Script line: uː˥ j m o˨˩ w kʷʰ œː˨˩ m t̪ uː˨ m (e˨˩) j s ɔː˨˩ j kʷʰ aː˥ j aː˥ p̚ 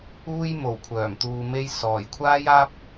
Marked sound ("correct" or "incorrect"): incorrect